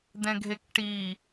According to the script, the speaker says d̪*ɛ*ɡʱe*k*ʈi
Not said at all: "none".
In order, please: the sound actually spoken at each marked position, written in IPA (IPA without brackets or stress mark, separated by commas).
ɛ̃, k